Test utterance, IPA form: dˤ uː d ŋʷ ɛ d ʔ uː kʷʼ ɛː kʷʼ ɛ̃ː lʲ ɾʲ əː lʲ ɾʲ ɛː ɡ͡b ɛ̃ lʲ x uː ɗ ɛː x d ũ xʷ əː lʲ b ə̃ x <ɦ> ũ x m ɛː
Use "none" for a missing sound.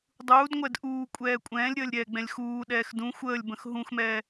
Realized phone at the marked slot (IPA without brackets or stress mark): ɦ